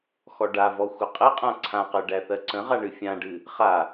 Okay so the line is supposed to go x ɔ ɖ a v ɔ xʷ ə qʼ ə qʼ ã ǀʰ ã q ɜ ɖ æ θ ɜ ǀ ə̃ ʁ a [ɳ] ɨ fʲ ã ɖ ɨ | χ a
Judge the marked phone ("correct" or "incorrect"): correct